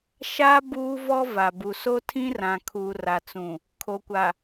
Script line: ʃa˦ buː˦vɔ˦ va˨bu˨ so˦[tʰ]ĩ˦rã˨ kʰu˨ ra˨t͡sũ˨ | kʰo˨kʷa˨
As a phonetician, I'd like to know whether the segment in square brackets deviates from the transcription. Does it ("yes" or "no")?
no